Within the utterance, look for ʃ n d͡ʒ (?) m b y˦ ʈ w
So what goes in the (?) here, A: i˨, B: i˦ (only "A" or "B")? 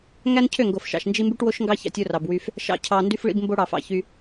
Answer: B